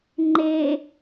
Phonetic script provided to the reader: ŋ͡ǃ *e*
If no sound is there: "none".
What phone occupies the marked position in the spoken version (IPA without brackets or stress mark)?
e